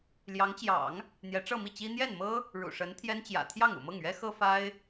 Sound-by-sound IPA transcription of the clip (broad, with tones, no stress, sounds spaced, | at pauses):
l j ɑ˧˥ ŋ t͡ɕ j ɑ̰˨˩˦ ŋ | n̪ j ɛ˧˥ ʈ͡ʂ ɤ˥˧ m i˥˩ t͡ɕ i˥ n̪ j ɛ˥˩ n m ɤ˥ | ɻ ṵ˨˩ ʂ ə˧˥ n t̪ʰ j ɛ˥ n t͡ɕ j ä̰˨˩ t̪ʰ j ɑ˥˩ ŋ ṵ˨˩ m ɤ˥˩ ŋ ɥ ɛ˥ x ɤ˥ f a˥ ɪ̯